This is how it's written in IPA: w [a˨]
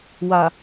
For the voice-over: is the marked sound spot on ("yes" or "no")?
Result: yes